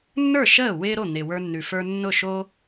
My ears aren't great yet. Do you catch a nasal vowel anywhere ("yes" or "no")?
no